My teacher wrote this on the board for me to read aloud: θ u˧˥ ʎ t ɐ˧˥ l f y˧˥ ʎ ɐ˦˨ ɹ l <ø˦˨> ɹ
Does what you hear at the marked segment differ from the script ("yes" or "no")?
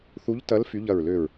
no